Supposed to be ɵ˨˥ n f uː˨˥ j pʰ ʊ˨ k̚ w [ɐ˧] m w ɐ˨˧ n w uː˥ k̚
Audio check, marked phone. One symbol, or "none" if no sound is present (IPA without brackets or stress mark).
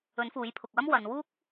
ɐ˥